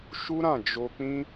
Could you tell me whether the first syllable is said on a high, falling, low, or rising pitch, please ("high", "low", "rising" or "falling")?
high